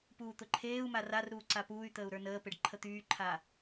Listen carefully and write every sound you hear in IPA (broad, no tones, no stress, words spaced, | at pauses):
puːt̪ʊǃʰeːu̯ma rarɾuː ǀapuːy̯t̪əːu̯ ɾə˞nəːpeɖ ǃʰət̪yːǃʰa